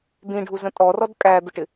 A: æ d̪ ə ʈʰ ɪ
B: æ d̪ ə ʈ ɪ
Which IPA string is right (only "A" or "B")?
B